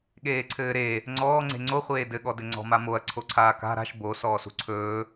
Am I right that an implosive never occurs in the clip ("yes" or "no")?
no